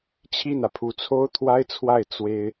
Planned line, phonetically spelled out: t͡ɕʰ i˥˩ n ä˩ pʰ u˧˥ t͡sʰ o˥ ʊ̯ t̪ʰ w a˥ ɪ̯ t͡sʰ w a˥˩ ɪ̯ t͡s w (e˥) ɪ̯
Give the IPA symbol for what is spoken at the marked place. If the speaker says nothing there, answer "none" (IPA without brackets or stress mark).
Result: e˥